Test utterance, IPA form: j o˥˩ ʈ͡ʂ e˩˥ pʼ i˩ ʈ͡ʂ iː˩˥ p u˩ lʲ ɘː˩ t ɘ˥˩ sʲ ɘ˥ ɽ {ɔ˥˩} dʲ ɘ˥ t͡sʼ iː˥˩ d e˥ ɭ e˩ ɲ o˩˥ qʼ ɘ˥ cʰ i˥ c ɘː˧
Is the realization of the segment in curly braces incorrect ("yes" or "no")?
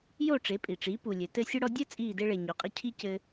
yes